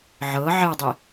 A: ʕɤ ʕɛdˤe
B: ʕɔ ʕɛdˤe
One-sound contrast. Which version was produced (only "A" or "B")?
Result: A